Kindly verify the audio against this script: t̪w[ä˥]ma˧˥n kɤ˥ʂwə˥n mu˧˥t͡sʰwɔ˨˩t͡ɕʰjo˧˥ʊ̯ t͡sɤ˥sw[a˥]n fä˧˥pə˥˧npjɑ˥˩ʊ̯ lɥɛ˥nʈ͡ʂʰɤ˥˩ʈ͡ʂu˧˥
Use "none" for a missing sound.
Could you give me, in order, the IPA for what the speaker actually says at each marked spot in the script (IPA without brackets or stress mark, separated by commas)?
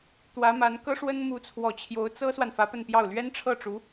ä˧˥, a˨